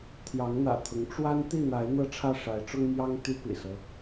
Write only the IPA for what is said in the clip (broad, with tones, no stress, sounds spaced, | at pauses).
t̪ʰ j ɑ˨˦ ŋ n̪ ä̰˨˩ t̪ʰ ʊ˨˦ ŋ ʈ͡ʂ w a˦ n t̪ i˥˨ n̪ a˨˦ ɪ̯ n̪ ɤ˦ ʈ͡ʂʰ ä˥˨ ʂ a˨˦ ɪ̯ ʈ͡ʂ ʊ˦ ŋ m j ɑ˦ ŋ t̪ y˦ p ḭ˨˩ s ɤ˦